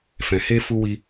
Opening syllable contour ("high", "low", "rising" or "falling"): low